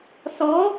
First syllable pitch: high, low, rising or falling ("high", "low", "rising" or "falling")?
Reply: rising